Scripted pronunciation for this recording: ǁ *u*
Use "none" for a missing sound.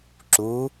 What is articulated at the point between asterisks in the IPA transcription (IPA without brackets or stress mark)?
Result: u